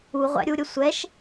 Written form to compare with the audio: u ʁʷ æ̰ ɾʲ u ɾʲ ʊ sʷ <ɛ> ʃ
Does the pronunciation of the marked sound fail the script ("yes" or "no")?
no